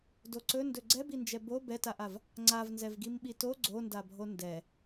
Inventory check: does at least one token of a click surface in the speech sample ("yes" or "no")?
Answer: yes